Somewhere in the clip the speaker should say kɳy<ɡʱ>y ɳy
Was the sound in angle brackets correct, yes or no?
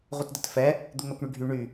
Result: yes